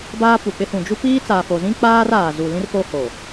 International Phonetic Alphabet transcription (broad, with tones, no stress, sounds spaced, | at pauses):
b aː˦ p u˨ k͡p ɪ˦ h ũ˨ d͡ʒ u˦ p iː˦ t͡s aː˨ f o˨ z ĩ˦ k͡p aː˦ r aː˨ z u˨ l ĩ˦ r f o˦ h o˨